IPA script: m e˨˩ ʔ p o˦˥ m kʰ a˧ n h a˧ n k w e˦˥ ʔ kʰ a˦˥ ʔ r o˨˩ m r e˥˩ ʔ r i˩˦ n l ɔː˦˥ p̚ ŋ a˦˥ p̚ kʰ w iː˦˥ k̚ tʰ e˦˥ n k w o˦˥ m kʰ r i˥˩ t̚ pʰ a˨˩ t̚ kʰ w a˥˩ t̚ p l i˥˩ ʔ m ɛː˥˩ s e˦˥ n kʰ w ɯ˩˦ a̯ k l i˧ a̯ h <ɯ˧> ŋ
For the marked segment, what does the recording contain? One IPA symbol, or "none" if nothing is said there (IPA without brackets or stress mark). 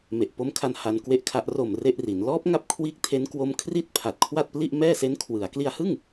ɯ˥˩